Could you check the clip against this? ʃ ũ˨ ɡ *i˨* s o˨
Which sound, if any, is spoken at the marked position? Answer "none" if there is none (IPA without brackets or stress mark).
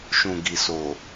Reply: i˨